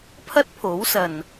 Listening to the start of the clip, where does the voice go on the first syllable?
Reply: high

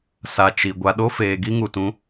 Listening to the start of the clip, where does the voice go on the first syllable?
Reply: low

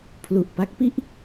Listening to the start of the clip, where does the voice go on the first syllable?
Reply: low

